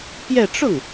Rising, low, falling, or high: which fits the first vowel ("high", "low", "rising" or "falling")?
falling